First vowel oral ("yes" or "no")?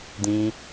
no